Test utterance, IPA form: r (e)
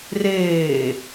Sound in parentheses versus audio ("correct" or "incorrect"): incorrect